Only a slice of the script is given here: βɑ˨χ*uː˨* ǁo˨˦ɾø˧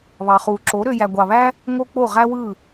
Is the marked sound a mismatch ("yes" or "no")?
no